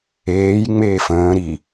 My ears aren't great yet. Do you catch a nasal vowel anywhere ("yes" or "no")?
yes